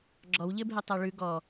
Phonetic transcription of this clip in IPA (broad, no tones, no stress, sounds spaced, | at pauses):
ɡ͡ǁ ɔ w ʎ ɘ bʱ e tˤ a ɭ ʉ ɡ ɔ